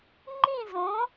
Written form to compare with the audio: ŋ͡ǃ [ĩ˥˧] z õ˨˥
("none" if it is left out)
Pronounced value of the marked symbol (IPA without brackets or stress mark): ĩ˥˧